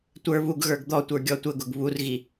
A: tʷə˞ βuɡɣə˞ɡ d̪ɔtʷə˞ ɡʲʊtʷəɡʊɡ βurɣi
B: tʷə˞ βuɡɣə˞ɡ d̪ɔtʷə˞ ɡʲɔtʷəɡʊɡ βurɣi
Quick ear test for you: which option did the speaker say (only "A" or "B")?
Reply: B